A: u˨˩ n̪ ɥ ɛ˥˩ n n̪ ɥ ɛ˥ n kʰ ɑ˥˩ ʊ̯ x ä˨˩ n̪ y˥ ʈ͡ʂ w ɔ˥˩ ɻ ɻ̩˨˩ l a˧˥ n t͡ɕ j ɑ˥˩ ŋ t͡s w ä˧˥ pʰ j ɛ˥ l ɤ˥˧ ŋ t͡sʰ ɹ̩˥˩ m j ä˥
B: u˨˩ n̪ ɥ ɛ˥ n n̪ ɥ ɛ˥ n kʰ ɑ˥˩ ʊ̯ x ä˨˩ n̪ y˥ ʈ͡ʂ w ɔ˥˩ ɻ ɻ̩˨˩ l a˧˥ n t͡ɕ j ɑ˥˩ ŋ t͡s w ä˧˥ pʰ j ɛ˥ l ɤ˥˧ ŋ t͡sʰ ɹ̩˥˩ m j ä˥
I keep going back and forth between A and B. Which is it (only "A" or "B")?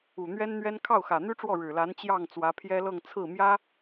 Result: B